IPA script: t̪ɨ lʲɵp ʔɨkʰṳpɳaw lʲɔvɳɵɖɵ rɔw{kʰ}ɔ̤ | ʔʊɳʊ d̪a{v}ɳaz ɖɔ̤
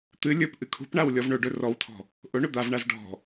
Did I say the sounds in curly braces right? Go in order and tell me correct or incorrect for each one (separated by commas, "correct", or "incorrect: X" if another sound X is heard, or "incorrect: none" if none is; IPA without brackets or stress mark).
incorrect: tʰ, correct